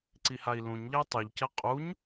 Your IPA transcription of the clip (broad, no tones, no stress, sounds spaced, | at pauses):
ǀ i h a i̯ l ũ ɲ ʎ ɐ y̯ tˤ u ʎ c ɐ qʼ u ɲ